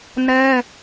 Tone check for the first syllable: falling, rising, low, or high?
high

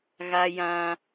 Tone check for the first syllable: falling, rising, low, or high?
high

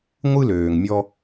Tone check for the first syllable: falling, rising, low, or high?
high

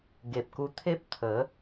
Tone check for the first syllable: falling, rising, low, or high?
low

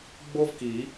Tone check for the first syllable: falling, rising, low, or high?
high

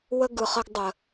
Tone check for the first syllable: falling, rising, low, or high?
high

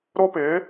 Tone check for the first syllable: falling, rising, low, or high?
high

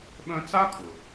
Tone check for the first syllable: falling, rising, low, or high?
high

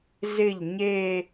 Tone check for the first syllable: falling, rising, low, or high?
falling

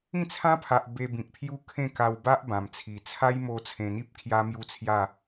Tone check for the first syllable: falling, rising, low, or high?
falling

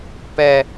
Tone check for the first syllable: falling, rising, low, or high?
high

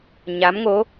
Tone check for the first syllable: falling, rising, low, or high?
rising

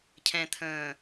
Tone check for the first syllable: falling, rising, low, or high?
low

